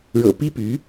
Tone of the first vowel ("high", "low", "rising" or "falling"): low